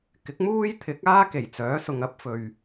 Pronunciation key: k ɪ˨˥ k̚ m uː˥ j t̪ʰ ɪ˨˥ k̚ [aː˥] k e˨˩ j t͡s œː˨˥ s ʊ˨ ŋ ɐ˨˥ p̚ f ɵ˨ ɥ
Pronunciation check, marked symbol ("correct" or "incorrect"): correct